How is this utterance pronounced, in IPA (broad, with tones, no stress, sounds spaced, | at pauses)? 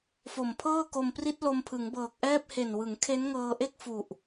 f o˨˩ m pʰ ɤː˥˩ k o˧ m p r i˦˥ t̚ l o˧ m pʰ ɯ˩˦ ŋ b ɤː˨˩ k̚ ʔ ɛː˥˩ p̚ h e˨˩ n w ɯ˩˦ ŋ kʰ e˦˥ n ŋ ɤː˧ ʔ e˥˩ k̚ f u˨˩ ʔ